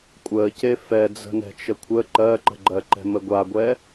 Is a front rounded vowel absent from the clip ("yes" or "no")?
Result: yes